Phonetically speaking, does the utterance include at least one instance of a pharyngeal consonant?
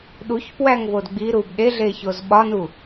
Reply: no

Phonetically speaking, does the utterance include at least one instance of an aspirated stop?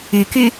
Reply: no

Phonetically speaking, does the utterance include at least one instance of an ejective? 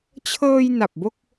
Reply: no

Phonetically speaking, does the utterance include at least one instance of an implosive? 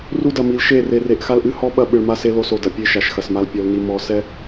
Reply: yes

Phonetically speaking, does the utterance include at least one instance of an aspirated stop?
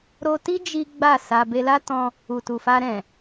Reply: no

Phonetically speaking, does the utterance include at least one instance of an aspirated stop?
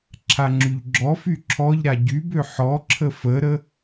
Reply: yes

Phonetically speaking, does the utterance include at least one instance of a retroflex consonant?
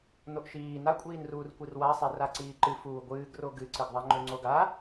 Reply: no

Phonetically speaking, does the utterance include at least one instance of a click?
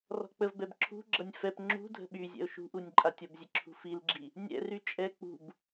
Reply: yes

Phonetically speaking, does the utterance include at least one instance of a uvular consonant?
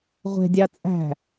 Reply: yes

